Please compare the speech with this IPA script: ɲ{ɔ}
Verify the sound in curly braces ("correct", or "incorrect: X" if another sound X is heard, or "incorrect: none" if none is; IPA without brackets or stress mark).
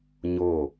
incorrect: o